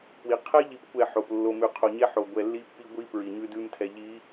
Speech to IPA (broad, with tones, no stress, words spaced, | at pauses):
pwi˨ qʰɛ˦ ʎi˦pkʷɛ˦˨ ħo˨p lːo˨mʉ˨qʰo˨ɲɛ˦ ħo˨ ɡʷɛ˨lːi˦pːi˦ ɡʷi˦ pɹi˨ɲʉ˦ dʉ˦mtʰɛ˨ʎi˨˦